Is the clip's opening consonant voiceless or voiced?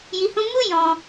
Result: voiced